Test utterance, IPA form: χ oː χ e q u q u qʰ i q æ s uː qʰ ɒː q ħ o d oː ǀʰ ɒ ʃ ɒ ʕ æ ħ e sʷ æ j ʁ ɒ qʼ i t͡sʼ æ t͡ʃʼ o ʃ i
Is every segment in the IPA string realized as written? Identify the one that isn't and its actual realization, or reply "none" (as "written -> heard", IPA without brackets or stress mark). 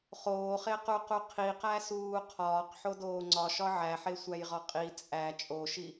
ǀʰ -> ŋ͡ǀ